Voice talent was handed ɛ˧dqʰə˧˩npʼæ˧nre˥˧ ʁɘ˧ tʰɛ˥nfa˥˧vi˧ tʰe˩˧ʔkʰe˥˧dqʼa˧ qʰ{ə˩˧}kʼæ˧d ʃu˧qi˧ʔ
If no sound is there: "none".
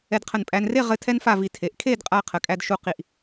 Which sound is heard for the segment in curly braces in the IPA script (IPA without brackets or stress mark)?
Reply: ə˩˧